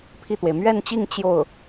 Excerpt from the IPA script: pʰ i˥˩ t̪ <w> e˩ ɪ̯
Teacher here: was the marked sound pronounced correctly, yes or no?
yes